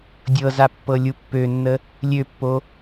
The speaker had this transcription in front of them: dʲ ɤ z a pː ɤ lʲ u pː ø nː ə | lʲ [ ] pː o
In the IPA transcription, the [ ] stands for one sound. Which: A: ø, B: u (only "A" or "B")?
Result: A